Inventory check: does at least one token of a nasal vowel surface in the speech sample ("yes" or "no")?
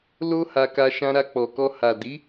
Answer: yes